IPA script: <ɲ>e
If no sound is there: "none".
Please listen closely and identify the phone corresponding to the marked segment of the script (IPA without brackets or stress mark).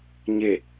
ɲ